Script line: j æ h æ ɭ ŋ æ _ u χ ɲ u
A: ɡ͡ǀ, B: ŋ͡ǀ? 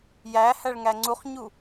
B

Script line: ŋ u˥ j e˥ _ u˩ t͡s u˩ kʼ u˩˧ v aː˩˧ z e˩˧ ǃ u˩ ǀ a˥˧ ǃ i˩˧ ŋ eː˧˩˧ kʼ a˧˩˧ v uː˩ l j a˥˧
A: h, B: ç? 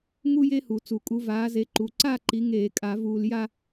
A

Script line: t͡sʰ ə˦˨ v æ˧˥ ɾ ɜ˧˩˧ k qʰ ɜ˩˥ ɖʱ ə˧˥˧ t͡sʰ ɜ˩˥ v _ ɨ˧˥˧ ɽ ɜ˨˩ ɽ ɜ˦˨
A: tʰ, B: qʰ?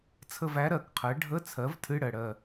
A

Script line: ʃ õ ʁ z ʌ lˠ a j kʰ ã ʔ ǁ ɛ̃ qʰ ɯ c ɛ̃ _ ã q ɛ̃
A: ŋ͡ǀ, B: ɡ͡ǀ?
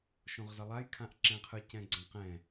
B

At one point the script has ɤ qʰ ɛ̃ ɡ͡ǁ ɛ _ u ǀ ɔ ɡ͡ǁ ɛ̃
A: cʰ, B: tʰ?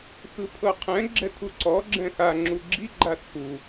B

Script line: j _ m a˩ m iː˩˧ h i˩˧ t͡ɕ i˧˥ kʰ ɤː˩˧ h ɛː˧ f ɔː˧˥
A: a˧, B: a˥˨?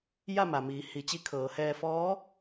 B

